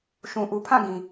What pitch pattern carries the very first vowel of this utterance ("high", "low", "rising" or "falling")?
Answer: low